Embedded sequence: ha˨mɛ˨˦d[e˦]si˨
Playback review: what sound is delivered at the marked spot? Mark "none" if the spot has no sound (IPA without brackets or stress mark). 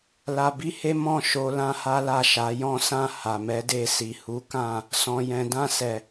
e˧